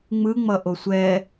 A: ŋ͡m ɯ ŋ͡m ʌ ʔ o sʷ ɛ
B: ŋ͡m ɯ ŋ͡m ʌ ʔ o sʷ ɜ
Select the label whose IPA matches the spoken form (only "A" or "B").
A